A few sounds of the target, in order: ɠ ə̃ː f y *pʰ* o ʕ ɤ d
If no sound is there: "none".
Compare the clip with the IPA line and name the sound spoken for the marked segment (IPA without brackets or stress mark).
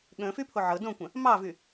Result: pʰ